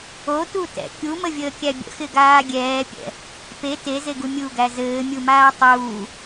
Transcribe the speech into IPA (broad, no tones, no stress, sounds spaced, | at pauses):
o t u t ɛ̰ kʲ u m ə vʲ əː kʲ æ bʲ ə̰ x ɪ ɡ aː ɡʲ ɛː pʲ ɛ̰ | p e t e z e ɡ u mʲ u ɡ æ z ɘː mʲ u m aː tˤ uː